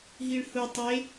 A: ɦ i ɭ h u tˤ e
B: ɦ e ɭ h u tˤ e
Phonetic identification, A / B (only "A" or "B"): A